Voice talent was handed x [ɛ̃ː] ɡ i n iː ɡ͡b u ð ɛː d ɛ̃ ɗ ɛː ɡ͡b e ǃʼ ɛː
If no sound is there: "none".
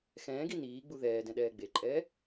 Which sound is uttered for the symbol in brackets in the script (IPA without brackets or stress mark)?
ɛ̃ː